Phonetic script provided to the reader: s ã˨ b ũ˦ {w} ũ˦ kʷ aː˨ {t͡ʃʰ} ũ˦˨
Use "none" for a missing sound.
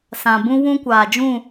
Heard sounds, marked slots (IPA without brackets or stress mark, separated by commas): w, d͡ʒ